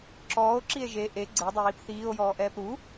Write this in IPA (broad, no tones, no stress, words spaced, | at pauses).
ǁɔːo̯ǁie̯ ʒe ʔe ɡ͡ǀɛdˤɜjip θiːo̯jɔːʔɛːp ɾu